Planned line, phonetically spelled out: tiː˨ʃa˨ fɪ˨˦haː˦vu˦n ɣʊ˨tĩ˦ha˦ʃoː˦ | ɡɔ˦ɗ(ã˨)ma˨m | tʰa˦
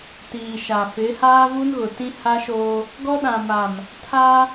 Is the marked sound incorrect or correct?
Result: correct